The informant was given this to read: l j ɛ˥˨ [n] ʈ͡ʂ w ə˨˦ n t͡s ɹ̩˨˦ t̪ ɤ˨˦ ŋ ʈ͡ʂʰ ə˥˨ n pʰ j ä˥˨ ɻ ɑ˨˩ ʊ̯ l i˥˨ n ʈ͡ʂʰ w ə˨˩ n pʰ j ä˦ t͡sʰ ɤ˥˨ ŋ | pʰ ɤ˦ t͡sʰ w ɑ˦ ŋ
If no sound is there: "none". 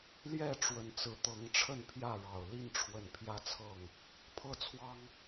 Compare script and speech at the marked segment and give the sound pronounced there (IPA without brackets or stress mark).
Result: none